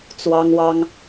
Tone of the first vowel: high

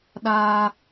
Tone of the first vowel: high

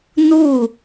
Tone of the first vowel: falling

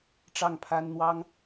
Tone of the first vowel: falling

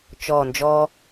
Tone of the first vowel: low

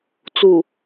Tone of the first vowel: low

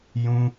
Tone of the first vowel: high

